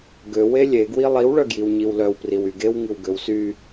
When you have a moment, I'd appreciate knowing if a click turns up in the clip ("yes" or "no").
no